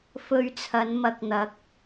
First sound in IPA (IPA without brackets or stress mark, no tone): f